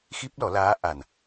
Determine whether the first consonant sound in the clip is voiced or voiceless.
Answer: voiceless